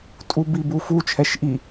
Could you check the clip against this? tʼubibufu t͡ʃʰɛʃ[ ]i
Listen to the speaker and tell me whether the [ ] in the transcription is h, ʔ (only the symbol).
ʔ